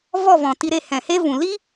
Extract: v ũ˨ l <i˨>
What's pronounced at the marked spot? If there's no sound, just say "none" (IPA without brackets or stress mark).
i˦